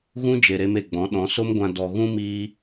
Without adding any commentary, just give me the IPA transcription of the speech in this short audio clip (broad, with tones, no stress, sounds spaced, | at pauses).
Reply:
ɣ ũ˦ d͡ʒ e˨ ɾ e˧ m e˨ ɡ͡b ɔ̃˨˦ ɗ ɔ̃˨˦ s o˦ m ɡʷ ã˧ d ɔ˨ ɣ ũ˦ m iː˧